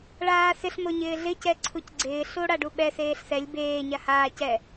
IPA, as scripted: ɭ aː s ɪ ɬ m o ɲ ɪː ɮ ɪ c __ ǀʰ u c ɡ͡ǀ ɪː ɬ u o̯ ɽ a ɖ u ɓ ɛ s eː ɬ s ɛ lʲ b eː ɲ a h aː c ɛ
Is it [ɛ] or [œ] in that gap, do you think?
ɛ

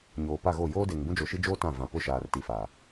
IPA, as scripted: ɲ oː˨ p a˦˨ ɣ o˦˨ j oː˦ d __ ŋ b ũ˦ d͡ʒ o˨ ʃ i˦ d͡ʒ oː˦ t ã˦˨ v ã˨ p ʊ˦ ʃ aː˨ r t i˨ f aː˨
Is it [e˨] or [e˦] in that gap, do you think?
e˨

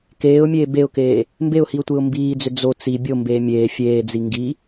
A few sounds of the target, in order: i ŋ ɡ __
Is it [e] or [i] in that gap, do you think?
i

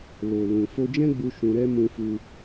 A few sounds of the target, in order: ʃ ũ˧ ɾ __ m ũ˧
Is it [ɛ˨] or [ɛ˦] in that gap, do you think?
ɛ˦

